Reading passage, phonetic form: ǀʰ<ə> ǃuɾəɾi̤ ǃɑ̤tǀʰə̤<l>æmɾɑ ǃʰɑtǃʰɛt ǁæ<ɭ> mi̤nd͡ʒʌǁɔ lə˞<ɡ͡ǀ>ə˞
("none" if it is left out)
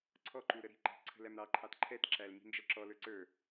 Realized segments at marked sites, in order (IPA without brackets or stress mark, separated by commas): ɔ, l, l, ǀ